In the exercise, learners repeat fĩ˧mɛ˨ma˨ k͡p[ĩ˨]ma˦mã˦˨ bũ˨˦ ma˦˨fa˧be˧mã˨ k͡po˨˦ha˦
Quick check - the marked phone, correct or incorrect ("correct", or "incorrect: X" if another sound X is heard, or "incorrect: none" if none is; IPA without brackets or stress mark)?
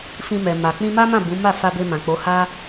incorrect: ĩ˧